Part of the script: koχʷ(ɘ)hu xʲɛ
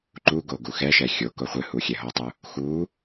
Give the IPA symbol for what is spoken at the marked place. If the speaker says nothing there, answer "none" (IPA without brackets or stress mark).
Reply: ɘ